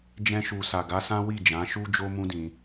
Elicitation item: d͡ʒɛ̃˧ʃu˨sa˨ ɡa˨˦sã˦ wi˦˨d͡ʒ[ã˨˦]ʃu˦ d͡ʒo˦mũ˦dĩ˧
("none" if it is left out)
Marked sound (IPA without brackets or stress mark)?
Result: ã˨˦